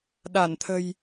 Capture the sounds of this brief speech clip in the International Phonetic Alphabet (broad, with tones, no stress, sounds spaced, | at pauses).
ɗ a˧˩ n t̪ʰ ə̤˨˩ j